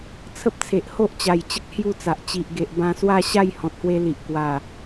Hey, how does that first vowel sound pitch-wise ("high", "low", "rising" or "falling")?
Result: high